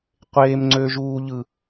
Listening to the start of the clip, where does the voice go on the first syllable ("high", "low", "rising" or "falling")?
high